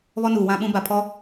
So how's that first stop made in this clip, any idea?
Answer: implosive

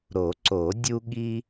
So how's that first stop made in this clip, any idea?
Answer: click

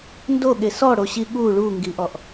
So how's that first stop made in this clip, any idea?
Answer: plain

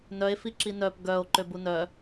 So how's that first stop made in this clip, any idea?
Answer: click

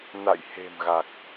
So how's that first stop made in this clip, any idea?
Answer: plain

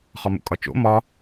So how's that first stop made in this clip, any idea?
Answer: ejective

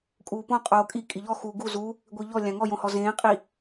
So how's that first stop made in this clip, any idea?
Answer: ejective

